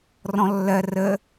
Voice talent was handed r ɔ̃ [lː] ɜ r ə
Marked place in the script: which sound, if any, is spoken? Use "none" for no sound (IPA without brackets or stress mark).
lː